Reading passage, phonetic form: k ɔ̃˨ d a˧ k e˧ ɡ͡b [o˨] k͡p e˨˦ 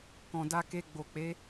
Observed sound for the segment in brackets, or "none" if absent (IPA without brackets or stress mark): o˨